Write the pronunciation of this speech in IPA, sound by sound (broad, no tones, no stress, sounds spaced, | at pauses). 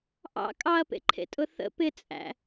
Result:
ʔ ɑ̰ kʼ ɑ ɐ̯ p ḛ ǃʰ ḛ tʼ ʊ θ ə̰ p ɪ t͡sʼ æ̰